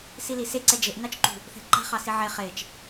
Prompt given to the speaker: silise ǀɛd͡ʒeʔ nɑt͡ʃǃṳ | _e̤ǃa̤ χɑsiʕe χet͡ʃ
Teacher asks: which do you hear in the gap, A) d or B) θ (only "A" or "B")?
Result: B